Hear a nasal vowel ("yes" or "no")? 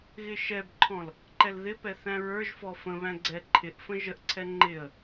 yes